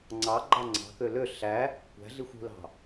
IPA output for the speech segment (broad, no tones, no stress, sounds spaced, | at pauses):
ŋ͡ǀ ɑ ɡ͡ǃ ɑ ŋ͡ǀ ɑ̤ k ø l ø ɬ æ | kʷ æ̤ ɮ i xʷ ṳ l ɑ̤